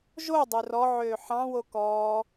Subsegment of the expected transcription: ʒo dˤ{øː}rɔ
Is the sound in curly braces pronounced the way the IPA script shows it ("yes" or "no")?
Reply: no